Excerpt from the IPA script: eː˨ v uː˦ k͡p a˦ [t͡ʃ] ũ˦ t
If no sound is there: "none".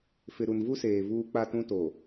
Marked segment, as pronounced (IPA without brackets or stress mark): t